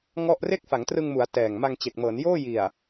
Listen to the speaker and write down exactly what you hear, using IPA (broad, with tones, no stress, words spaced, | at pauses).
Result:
ŋɔ˥˩ʔ re˥˩k̚fa˩˦ŋtrɯ˧ŋmu˩˦a̯ tɛː˨˩ŋma˧ŋt͡ɕe˨˩k̚ mɤː˩˦njoː˥˩ ji˨˩a̯